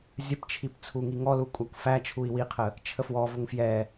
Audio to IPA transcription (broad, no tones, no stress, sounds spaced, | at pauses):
zʲ ə p t͡ʃʰ i p t͡sʰ u ŋ i ŋ ɔ l u kʷʼ æ kʷ f æ t͡ʃʰ u i̯ w i qʰ ə | t͡ʃʰ ə f w ɔ v ʊ ŋ f j ɛ